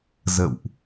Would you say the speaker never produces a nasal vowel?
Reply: yes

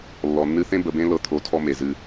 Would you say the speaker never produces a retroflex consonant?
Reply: yes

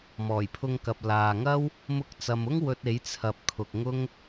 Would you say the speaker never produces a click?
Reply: yes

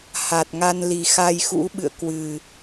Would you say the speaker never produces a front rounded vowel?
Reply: yes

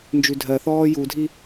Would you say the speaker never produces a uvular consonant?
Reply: yes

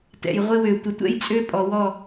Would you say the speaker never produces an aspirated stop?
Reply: yes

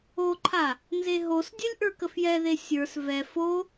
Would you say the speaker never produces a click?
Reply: no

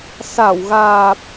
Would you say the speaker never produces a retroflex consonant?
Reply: yes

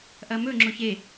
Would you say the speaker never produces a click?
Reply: no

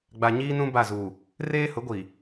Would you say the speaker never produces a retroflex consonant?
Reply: yes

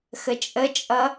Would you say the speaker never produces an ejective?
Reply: no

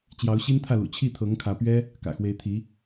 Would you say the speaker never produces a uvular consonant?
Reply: yes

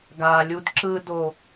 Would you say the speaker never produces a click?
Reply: no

